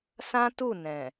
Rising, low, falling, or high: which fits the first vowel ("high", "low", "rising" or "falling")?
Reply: high